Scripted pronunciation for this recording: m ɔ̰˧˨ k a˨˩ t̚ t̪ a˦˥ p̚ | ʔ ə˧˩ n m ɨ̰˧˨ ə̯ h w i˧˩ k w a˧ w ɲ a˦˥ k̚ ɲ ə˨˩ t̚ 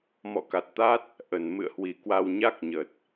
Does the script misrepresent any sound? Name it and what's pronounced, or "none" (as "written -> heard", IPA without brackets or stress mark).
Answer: p̚ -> t̚